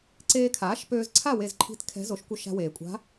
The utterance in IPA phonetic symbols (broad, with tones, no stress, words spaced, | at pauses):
ǀeː˧kʰaː˩˥ʃpøː˧zǀʰa˥˨ we˥˨zǃʰi̤˥˨t kʰɛ̤˧˥zo˩˥ʃkʷœ˧ ʃa̤˧weː˩kʷʼa̤˧˥